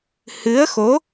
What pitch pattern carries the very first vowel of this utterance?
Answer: rising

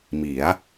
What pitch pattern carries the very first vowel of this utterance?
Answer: rising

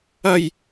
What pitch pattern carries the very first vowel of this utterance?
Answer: low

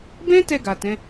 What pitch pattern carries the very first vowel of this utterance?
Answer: high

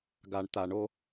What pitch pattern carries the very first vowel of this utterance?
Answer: low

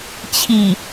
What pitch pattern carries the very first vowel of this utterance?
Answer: low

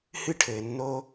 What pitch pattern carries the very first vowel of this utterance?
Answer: high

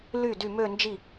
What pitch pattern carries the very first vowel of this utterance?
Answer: falling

